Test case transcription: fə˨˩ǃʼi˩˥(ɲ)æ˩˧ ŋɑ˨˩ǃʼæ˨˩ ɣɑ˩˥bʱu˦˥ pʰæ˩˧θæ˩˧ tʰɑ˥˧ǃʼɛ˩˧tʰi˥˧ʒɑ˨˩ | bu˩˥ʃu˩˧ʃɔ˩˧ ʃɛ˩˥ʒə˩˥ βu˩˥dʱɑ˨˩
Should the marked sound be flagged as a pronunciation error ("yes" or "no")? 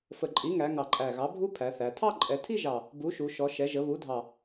yes